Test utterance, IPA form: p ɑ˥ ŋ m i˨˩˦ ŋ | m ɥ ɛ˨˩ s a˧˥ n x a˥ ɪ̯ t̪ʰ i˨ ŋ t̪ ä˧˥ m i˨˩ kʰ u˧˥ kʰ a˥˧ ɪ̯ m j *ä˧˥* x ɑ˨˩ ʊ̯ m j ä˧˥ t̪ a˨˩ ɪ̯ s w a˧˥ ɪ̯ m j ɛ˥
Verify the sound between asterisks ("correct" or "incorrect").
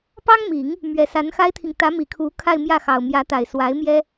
incorrect